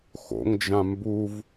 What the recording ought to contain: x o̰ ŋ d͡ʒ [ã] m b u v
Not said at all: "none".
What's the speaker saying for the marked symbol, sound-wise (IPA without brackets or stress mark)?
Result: ã